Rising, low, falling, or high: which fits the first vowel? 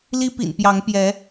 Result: high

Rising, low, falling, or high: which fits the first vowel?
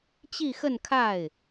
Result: falling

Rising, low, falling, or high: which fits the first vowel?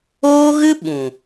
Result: high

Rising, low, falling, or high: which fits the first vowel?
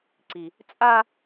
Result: low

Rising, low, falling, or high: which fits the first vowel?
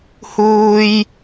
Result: high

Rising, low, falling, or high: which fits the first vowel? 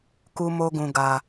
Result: high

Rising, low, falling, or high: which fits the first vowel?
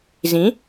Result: rising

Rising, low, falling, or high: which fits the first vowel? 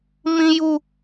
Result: high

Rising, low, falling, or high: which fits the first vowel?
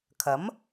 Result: rising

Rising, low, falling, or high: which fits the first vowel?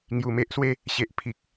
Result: low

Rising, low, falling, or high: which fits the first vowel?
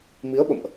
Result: rising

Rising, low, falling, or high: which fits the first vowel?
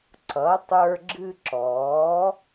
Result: rising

